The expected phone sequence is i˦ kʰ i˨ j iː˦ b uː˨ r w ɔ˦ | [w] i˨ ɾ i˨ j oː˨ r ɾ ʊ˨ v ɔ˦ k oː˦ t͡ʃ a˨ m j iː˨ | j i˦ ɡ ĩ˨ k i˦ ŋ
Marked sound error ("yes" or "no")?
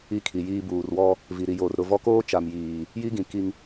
yes